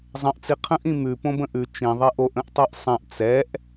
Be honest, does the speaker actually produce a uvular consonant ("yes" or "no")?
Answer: yes